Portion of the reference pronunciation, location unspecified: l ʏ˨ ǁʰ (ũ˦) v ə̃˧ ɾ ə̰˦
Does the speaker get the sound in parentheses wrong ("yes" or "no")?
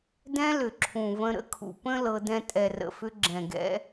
yes